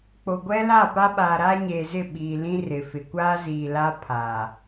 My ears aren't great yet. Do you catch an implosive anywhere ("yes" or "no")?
yes